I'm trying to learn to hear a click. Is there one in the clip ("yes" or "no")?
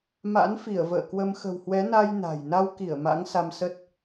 no